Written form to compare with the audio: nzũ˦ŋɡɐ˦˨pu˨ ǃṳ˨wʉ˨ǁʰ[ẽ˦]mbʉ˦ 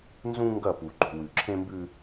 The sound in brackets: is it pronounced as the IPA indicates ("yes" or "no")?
yes